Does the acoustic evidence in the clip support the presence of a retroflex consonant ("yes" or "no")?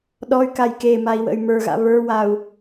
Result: no